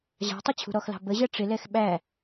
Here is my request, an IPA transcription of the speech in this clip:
ʑ ɑ̤ tˤ ʊ t͡ɕʰ ṳ ɾ ɔ x l ɑ̤ b ə ʑ ɜ ʈ͡ʂ ɪ l ɛ x ɓ æ

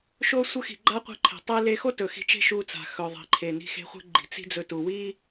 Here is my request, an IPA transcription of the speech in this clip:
ʃ o˧ sʷ ə˧ x i̤˩ ɡ͡ǃ a˥ qʷ i̤˧ ǃʰ e̤˩ tˤ e˧ l e˧ x o˥ t ɵ˩ x i̤˧ t͡ʃ e̤˥ ʃ u˧ t͡s a̤˩ x ɵ˩ ðˤ i̤˩ ǃʰ e˩ n i̤˧ x e̤˧ χʷ e̤˥ ɡ͡ǃ i̤˩ t͡s i̤˥ d͡z ɵ˧ t u˩ w i˥

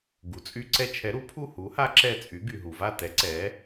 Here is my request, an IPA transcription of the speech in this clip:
ɡ u˩ t͡sʼ y˧ ǀ ɛ˧ t͡ʃʰ ɛ˩˥ ɾ u˩˥ pʰ u˥˨ h u˩˥ h a˧˥ ǁ ɛ˧˩ t͡sʼ y˩˥ ɡ y˩ ɦ u˩ v a˥˨ t ɛ˩˥ ǀ ɛ˩˥

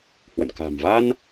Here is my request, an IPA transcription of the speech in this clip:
h w ə̰˧˨ n k a̤˨˩ m v a˧ n

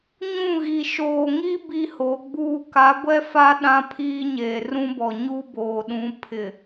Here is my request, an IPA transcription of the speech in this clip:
ɲ ũ˦˨ ɣ i˨ ʃ oː˨ ŋ i˦ b i˦ h o˨˦ ɡ͡b uː˦ k a˨˦ ɡʷ ɛ˦ f a˦ ɗ ã˦ pʰ iː˦ ɲ eː˨ r ũ˦ b ɔ˨ ɲ u˦ b oː˨ ɗ ũ˨˦ pʰ ɪ˨

